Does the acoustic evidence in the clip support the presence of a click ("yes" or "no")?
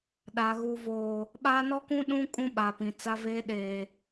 no